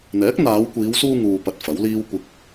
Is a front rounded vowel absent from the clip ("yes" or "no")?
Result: yes